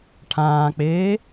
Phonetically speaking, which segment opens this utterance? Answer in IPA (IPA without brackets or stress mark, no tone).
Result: ʈʰ